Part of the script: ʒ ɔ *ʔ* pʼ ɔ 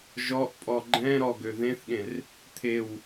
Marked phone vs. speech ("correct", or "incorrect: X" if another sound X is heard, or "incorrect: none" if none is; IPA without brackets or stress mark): correct